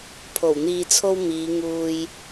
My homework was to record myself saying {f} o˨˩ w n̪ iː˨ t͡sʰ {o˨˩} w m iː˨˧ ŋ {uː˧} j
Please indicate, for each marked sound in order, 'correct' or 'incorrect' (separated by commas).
incorrect, incorrect, correct